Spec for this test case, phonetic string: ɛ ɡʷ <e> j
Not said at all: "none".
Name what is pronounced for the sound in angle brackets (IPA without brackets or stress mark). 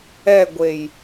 e